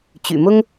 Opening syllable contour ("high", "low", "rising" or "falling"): low